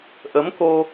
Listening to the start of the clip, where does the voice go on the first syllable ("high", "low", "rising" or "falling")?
rising